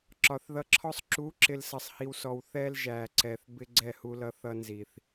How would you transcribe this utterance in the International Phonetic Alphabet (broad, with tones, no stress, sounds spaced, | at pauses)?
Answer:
ǁ ɒ˨ θ ð ʌ˧ ǁʰ ɔ˦ sˤ ǁ u˨˦ ǁ ɪ˨ l s ʌ˨ sˤ h i˨ w s ɔ˨ w θ ɛ˧ l ʒ æ˨ ǀ ɛ˨ θ b ɪ˦ ɡ͡ǀ ɛ˦˨ h u˧ l ʌ˧ θ ʌ˦ n z i˨ θ